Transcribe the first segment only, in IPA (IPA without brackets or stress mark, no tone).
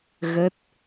ɣ